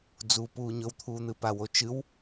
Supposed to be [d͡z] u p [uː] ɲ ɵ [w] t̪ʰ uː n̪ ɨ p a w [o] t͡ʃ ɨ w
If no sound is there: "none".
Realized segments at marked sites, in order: d͡z, uː, w, o

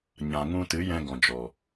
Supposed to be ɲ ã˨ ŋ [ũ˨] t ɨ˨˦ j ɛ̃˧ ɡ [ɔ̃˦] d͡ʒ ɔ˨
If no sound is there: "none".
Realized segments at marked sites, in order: ũ˧, ɔ̃˨

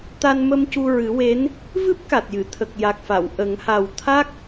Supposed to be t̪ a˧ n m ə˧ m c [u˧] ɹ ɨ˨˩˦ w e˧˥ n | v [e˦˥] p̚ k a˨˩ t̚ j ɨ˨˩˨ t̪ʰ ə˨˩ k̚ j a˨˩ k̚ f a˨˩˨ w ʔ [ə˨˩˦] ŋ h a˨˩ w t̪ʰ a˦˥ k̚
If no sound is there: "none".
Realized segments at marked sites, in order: u˧, ɨ˦˥, ə˨˩˦

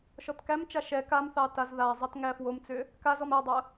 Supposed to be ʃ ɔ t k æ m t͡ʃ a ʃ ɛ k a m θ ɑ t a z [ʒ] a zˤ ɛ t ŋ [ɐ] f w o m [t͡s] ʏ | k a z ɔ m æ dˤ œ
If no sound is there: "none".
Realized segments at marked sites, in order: ð, æ, t͡s

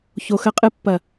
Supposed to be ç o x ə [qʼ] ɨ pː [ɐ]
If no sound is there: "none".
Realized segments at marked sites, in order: qʼ, ɐ

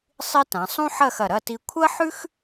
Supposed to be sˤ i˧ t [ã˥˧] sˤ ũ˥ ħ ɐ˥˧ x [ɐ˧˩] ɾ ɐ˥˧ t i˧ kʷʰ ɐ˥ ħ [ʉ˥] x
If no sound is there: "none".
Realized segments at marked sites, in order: ã˩˧, ɐ˧˩, ʉ˥

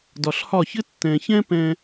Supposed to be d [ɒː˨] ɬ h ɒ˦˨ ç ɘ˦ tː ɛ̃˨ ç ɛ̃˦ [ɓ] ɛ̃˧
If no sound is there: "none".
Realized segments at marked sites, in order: ɒ˨, p

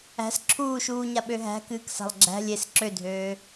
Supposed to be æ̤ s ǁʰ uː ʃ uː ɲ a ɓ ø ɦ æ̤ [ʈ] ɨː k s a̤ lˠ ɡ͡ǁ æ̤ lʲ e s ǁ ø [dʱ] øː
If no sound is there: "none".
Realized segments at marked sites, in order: k, dʱ

